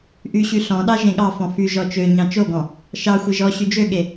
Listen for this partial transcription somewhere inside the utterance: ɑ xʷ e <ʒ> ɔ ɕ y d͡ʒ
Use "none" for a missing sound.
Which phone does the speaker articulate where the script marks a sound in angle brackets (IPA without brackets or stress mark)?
ʒ